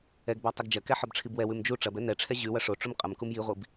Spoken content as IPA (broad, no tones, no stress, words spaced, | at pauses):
ɛɡbɒ tˤɛɡd͡ʒɐkɛ ħɒbʈ͡ʂʰibwɛwʉm d͡ʒu ʈ͡ʂɐbɛ nɛʈ͡ʂʰɛ ʑʉwɐ ʂoʈ͡ʂum qʼɐmkum jiʁʷib